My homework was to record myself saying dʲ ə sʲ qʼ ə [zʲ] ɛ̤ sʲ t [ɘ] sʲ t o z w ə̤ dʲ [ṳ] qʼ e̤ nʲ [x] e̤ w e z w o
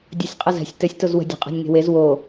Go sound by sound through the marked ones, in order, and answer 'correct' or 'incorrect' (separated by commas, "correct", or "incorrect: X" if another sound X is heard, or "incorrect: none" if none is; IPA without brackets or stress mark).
incorrect: z, correct, incorrect: o̤, incorrect: ŋ